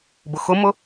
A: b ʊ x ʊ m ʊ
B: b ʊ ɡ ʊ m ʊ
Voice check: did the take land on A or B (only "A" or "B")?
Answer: A